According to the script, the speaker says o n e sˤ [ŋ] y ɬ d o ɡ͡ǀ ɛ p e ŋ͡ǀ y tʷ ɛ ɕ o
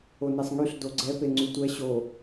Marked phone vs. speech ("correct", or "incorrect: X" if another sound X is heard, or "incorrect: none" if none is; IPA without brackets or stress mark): correct